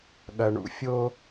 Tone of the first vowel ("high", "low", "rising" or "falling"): low